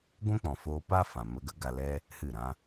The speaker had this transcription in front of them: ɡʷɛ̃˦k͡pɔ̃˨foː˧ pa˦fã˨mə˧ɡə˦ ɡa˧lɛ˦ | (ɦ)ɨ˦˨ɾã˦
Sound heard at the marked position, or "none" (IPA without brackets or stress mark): h